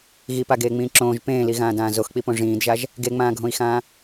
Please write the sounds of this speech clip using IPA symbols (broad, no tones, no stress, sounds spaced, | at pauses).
ɣ i p a ɡ eː ŋ͡m ĩː ǁ õː ʒ p ẽː l i ɣ ãː d ãː z o x k͡p i p õ ʐ ĩː d ʒ a ʒ | ɡ e ŋ͡m ãː ɡʱ õ i̯ x ãː